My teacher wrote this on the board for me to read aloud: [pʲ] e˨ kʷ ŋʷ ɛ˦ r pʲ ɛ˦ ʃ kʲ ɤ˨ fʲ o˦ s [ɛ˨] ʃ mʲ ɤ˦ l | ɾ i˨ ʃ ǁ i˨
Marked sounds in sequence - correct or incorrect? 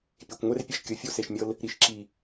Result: correct, incorrect: e˨

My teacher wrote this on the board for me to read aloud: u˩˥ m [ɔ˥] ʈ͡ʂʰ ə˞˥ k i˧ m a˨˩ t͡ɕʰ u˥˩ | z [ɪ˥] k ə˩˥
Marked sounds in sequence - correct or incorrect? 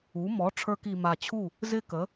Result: incorrect: ɔ˩˥, correct

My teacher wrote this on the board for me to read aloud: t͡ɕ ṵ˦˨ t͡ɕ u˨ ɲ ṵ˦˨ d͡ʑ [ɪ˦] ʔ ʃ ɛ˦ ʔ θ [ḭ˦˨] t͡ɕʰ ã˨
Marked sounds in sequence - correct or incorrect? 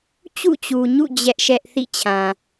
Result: incorrect: ɛ˦, correct

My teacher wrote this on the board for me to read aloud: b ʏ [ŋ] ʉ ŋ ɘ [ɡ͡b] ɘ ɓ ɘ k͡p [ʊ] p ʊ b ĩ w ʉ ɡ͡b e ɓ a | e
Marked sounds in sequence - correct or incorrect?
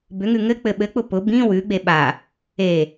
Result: correct, incorrect: k͡p, correct

